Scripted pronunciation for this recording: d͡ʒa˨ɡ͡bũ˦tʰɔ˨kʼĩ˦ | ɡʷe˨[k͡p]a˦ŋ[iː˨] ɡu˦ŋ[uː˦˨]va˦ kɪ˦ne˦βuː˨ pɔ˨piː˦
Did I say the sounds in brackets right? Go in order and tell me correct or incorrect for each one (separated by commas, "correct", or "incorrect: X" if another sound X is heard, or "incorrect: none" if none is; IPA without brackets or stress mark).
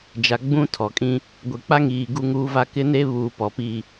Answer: correct, correct, incorrect: uː˦